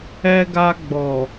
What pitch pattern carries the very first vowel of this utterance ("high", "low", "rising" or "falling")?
high